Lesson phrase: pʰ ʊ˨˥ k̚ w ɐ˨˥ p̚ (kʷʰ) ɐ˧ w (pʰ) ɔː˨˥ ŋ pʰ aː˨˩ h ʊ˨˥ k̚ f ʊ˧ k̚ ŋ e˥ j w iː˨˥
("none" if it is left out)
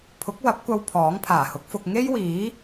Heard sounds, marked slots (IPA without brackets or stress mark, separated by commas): kʷ, pʰ